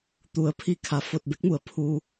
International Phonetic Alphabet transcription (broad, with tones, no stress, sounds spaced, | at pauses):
t̪ u˩˧ ə̯ pʰ i˧ kʰ a˩ f o˧˩ t̚ b e˧˥ k̚ m u˩ ə̯ pʰ u˧